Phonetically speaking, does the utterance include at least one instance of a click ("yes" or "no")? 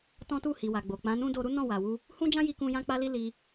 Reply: no